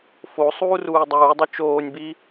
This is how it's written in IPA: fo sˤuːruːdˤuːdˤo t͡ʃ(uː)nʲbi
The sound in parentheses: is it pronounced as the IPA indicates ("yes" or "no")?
no